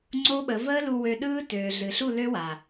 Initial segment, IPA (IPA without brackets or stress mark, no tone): ŋ͡ǀ